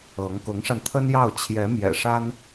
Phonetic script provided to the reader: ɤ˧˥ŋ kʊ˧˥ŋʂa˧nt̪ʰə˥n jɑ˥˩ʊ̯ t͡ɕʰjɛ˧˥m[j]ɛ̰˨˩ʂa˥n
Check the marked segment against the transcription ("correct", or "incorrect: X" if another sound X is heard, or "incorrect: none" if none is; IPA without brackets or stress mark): correct